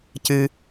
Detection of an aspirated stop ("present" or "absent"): absent